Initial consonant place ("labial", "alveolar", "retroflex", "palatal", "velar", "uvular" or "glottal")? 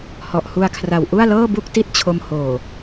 glottal